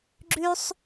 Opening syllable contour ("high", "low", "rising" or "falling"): high